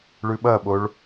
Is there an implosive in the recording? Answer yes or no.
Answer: yes